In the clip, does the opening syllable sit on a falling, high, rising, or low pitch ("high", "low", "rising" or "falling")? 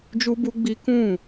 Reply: high